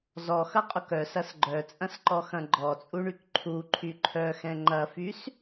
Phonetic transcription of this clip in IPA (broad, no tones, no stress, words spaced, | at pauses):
zɔxɐqʼʊk œsɐs ɡ͡ǃœt͡sʼɐ̃sǃɔxɐ̃ ɡ͡ǃɔt͡sʼuɳyk ǃʰuǃʰy ǃʰœxɛ̃ ŋ͡ǃɐfys